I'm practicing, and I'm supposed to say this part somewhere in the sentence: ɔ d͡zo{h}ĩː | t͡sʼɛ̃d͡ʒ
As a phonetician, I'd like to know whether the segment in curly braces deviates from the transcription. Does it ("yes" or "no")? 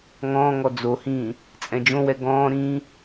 no